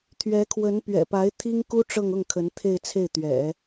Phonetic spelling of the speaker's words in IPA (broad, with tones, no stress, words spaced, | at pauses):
t̪ʰɥɛ˧˥kʰwə˧˥npɥɛ̰˨˩pa˧˥ɪ̯ t̪ʰi˥ŋku˥ ʈ͡ʂɤ˥˧ŋʊ˥˩ŋkʰə˧˥n t̪ʰe˥˧ɪ̯t͡sʰe˥˩ɪ̯t̪ɥɛ̰˨˩˦